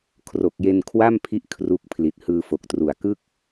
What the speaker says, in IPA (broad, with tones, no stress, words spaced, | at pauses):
kʰro˨˩k̚je˧nkʰwa˥˩mpʰi˦˥ʔ kʰru˦˥k̚pʰli˨˩t̚ hɯː˧fo˨˩k̚tru˨˩a̯ kɯ˥˩k̚